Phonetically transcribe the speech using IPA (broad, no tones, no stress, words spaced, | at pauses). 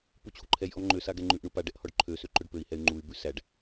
put͡ɕʰuǃʰɛjʔɔ ŋ͡ǃøsa ɡɛŋ͡ǃʉʔɳu paɖɛʔ hɔɖǃʰøsø ǃɵɖpøi̯hɛy̯ ŋ͡ǃuy̯bʉ sæɖ